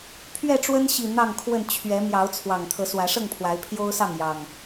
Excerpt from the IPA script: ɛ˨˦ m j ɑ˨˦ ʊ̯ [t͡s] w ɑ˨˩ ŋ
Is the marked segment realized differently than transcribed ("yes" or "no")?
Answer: yes